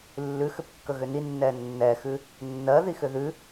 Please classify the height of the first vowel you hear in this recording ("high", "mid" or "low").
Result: high